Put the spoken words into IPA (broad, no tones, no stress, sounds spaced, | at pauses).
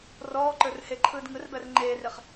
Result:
r ɔː ǃ ə˞ r h e ǃʰ ɯː d ŋ ɯ r b æ r ŋ͡ǃ eː r e χ